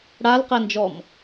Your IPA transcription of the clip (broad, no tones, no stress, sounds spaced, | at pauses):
ɽ a l q ɛ n d͡ʒ ɔ m